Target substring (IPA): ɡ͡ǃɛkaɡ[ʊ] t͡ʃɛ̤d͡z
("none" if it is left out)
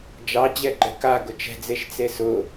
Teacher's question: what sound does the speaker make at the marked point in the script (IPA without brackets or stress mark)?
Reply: ʊ